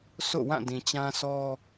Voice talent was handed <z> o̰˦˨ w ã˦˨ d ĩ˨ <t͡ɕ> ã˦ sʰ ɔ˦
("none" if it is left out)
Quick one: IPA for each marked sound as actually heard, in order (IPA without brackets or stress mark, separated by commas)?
s, t͡ɕ